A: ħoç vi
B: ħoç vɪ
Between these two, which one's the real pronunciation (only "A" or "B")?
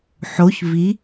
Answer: A